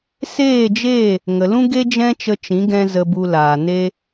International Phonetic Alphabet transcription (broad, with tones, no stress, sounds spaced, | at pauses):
s eː˦˨ d͡ʒ e˦˨ | ŋ ə˨ l ũ˦ ɡ e˦ d͡ʒ ɛ̃˦ t͡ʃ ə˧ t͡ʃ ĩ˨˦ ɡ ɛ̃˧ z ə˧ b u˧ l aː˨ n e˦